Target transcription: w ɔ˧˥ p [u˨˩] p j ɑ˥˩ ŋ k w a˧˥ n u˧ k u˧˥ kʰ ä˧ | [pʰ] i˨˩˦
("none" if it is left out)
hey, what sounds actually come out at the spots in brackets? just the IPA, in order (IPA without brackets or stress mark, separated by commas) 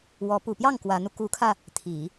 u˨˩, t̪ʰ